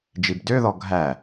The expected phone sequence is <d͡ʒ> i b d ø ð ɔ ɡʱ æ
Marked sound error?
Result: no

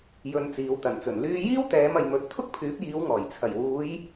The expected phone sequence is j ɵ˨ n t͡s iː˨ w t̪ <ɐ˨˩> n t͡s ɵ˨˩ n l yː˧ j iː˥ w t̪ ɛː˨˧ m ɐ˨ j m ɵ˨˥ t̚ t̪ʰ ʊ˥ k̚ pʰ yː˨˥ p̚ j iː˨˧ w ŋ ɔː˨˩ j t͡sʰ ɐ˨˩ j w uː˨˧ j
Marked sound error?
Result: no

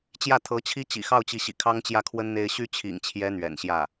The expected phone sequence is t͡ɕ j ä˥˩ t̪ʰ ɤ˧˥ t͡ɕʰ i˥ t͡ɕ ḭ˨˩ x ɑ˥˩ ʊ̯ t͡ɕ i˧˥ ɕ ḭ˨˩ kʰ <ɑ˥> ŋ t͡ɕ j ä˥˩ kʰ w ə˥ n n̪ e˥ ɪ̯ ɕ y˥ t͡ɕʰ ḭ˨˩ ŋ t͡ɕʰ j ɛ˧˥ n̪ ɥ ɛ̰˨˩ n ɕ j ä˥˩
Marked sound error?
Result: no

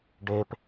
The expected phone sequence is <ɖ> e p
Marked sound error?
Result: no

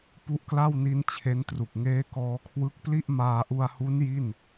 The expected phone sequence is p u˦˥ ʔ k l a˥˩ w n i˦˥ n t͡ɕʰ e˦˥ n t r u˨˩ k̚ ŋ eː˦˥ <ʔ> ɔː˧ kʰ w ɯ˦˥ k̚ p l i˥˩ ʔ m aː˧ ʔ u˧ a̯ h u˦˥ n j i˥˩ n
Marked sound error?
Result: yes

